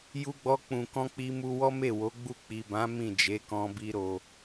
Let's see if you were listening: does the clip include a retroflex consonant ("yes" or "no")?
no